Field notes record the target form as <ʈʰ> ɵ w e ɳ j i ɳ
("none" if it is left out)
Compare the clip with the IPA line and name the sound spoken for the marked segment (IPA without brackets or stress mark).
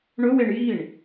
ɳ